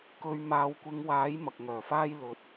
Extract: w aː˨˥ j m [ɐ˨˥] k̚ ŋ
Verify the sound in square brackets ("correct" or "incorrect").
incorrect